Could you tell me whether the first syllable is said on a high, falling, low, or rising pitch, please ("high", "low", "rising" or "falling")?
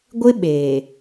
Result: high